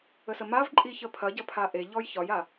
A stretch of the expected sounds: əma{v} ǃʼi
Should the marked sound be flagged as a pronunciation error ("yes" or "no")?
no